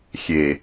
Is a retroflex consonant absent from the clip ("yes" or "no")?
yes